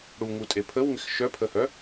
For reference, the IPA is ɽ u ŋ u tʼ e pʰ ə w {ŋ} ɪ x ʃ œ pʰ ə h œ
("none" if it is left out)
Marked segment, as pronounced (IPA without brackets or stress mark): ŋ